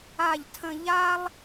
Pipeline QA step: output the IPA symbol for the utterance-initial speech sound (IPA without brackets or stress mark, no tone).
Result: a